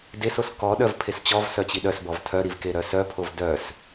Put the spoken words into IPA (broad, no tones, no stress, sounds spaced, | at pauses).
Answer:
d e s o s k ɔ ɗ œ v pʰ e s t͡ɕ ɔ v s œ t͡ɕ i ɗ œ s b ɔ v tʰ œ ɾ i v k e ɾ œ s œ pʰ o v d œ s